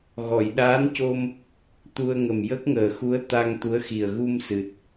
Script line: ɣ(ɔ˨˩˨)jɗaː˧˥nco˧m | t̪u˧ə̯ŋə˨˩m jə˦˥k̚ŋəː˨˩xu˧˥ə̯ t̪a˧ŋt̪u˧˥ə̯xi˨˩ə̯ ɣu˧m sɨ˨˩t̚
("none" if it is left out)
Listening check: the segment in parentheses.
ɔ˨˩˨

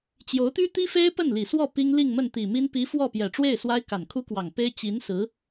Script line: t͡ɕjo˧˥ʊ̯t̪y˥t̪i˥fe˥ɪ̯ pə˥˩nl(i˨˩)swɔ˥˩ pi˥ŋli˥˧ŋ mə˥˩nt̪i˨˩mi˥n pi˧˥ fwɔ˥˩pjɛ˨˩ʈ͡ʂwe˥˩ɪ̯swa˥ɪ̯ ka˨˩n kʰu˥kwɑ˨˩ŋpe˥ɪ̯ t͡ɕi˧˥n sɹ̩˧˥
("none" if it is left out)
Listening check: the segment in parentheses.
i˨˩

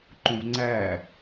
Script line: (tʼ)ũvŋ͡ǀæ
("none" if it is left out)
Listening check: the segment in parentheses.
ǃ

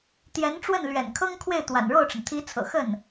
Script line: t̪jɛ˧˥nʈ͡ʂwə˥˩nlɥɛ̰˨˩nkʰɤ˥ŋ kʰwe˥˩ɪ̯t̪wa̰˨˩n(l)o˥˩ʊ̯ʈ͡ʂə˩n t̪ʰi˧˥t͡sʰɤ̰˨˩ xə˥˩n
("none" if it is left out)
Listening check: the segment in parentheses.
ɻ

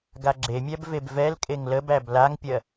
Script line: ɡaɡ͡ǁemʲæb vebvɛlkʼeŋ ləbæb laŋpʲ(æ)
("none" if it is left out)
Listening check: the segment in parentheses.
ɜ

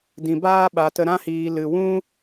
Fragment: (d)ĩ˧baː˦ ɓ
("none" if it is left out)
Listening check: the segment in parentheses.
d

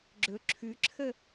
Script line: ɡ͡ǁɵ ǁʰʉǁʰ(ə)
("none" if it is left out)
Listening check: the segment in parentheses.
ə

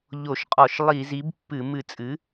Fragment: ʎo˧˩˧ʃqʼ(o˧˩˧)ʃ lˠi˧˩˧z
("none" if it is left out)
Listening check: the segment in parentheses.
ɔ˧˩˧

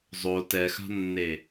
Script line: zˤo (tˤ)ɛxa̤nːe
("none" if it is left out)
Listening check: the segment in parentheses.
t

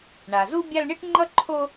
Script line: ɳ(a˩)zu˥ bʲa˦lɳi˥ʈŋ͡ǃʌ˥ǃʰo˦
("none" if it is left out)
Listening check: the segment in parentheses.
a˩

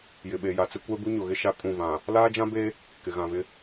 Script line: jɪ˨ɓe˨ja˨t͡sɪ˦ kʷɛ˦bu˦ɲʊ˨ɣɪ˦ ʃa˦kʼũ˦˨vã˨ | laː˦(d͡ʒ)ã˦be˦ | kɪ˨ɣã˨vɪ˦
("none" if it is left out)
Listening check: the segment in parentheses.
d͡ʒ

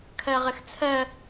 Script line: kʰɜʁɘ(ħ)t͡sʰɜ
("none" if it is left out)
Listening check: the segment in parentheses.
x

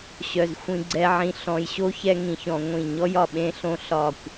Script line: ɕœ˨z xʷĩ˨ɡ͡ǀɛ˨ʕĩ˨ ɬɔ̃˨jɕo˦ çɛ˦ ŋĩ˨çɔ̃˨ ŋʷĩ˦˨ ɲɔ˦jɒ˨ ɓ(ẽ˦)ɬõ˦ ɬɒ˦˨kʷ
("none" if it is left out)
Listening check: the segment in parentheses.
ẽ˦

